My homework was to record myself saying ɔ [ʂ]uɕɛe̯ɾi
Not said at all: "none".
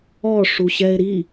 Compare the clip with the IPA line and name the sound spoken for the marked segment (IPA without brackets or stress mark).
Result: ʂ